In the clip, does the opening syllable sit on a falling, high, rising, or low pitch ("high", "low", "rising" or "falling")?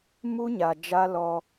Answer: high